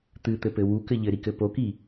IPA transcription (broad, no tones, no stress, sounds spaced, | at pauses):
t̪ ɨ t̪ ɘ p ɘ w u k ɘ ʎ ɘ ɾ i k ɘ p o k i